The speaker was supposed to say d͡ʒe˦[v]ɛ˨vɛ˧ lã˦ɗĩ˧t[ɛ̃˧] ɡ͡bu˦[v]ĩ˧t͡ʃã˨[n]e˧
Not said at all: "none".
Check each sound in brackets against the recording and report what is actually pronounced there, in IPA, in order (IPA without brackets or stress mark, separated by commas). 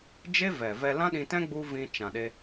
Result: v, ɛ̃˦, v, ɗ